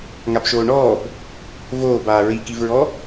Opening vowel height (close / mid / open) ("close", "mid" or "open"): open